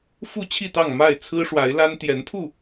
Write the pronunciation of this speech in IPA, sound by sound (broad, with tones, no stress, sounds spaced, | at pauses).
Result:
f u˥˨ t͡ɕʰ i˥˨ t̪ ɑ˥˨ ŋ m a˥˨ ɪ̯ t͡sʰ ɹ̩˦ ʂ w a˨˦ ɪ̯ l a˦ n t̪ j ɛ˨˦ n pʰ u˥˨